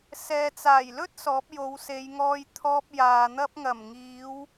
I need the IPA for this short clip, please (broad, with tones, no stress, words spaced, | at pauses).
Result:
sɛː˨t͡saː˨˩jlɵ˥t̚ sɔː˨˥p̚jo˨˧wse˨˧jŋɔː˧j t̪ʰɔː˧p̚ jaː˨ n̪ɐ˧p̚ŋɐ˨˩mŋiː˨˧w